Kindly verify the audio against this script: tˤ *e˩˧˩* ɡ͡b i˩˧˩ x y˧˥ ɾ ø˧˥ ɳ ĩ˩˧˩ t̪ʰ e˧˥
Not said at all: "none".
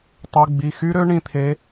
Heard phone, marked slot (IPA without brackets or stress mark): y˩˧˩